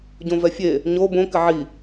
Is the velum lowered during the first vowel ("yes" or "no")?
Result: yes